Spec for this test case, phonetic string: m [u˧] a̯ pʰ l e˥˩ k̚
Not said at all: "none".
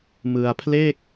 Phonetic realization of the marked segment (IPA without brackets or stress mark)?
ɯ˧